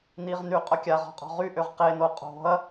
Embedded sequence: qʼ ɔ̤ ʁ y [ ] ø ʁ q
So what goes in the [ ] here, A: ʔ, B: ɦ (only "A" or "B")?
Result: A